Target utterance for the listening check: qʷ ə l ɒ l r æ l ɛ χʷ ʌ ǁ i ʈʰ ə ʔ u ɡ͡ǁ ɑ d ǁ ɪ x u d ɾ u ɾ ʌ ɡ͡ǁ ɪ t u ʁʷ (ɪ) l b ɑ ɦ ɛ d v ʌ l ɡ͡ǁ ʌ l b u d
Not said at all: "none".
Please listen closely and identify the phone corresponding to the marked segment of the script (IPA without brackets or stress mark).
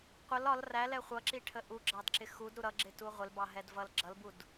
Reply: ɪ